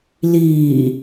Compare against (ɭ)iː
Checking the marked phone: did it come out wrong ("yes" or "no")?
yes